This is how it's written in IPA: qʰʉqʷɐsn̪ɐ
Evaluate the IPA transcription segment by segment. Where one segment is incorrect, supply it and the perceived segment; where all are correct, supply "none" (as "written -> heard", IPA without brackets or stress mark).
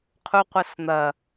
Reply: ʉ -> u